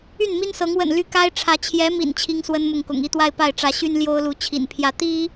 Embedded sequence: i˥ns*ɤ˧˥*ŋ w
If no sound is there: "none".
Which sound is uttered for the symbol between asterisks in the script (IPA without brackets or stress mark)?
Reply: ɤ˧˥